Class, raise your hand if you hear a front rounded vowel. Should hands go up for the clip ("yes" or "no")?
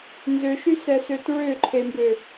yes